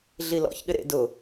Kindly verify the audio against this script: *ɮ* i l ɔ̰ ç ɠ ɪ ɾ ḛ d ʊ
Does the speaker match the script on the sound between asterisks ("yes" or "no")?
yes